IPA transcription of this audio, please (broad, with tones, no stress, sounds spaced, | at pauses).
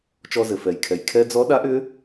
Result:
t͡ʃ ɔ˧ z ɘ˩ f ɛ˩ j kʰ ɛ˩ j kʰ ɛ˧ d͡z ɔ˧˥ ɗ a˧˥ ʔ ʏ˧˥